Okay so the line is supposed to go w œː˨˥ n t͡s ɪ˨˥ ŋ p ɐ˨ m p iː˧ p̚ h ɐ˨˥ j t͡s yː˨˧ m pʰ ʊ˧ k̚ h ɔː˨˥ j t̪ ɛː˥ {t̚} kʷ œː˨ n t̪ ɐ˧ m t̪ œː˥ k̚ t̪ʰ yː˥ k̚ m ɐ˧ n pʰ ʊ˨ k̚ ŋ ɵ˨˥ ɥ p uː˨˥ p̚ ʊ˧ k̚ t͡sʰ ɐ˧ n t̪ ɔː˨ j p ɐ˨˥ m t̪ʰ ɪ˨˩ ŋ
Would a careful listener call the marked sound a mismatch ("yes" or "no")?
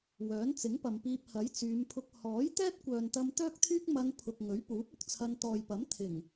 no